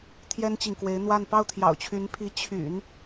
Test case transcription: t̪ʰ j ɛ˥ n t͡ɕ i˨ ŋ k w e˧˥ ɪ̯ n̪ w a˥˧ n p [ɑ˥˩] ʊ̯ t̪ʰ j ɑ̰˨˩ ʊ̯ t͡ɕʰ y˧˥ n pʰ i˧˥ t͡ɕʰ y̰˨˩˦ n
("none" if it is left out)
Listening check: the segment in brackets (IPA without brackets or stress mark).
ɑ˥˩